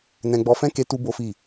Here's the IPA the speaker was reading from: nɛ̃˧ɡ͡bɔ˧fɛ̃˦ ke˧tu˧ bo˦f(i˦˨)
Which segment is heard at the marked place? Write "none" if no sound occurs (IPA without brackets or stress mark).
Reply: i˦˨